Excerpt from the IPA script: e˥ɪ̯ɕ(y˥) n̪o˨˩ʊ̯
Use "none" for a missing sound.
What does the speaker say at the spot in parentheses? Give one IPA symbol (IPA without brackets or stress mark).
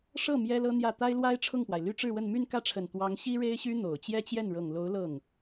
y˥